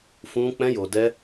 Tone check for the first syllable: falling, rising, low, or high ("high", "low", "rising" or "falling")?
high